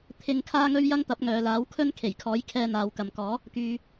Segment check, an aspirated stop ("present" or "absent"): present